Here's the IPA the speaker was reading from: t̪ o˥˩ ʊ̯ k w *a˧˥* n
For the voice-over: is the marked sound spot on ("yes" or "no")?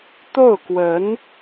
no